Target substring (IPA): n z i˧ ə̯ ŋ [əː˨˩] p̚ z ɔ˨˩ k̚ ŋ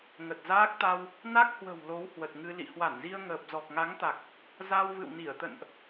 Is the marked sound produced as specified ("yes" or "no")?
yes